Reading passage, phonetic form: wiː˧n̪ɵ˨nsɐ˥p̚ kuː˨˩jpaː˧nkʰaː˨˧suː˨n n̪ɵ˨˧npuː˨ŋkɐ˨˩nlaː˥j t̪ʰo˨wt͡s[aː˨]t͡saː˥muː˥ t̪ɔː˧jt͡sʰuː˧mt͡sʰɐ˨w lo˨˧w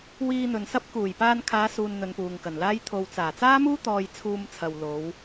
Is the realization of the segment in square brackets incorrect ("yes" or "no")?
yes